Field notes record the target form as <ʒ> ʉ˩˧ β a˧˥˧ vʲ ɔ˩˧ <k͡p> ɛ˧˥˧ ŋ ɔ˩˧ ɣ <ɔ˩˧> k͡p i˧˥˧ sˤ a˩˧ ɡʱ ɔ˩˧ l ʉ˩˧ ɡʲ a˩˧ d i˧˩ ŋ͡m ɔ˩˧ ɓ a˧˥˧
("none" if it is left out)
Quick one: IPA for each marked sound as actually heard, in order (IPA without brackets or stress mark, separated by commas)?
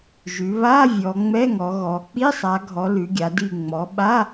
ʒ, ŋ͡m, ɔ˩˧